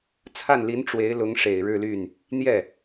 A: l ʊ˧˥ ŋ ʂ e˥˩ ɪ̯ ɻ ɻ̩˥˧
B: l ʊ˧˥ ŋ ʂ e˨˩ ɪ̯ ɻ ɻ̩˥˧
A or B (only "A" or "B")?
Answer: B